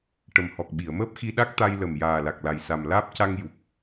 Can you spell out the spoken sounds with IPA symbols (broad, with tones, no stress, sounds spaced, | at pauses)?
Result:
ʈ ə˨˩ m h ɔ˨˩ k̚ ɓ i˨˩˨ ə̯ m əː˦˥ p̚ x i˧ ɗ a˦˥ k̚ t̪ a˧ j l ə˨˩ m j aː˨˩ l a˨˩ k̚ l a˨˩ j s a˨˩ m l aː˦˥ p̚ c a˧ ŋ j u˨˩ k̚